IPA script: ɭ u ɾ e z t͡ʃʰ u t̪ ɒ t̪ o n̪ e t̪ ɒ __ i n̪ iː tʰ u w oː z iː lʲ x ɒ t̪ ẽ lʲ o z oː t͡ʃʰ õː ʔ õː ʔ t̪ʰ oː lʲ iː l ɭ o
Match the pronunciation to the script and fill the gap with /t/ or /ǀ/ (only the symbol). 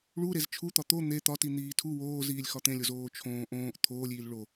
t